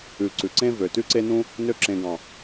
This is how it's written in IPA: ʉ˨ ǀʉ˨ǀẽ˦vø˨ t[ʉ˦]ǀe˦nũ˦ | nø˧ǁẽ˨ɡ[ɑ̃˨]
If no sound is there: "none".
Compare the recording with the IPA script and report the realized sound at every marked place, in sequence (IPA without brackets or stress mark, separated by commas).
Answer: ʉ˦, ɑ̃˨